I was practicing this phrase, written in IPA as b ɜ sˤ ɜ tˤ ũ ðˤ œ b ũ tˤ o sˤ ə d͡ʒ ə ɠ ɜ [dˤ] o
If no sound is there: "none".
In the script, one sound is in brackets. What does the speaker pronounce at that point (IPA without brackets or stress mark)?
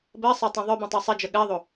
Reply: ðˤ